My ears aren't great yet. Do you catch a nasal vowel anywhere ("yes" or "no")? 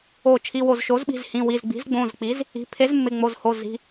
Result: yes